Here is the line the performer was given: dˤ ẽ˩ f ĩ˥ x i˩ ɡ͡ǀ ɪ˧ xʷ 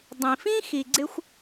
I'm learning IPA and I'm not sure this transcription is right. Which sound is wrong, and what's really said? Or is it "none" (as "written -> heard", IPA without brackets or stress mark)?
ẽ˩ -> ĩ˩